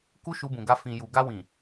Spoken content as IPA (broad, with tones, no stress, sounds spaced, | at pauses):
k u˦ ʃ u˧ b ũ˨ ɡ a˧ f ĩ˨ j u˨ ɡ a˧ w ĩ˨